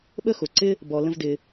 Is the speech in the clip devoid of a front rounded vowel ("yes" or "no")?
yes